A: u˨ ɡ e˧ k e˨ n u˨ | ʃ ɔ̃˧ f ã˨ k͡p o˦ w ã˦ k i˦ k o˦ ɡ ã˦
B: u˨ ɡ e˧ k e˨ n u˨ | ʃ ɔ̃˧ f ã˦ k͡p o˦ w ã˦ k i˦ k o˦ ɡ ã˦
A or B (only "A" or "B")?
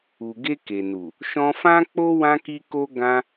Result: B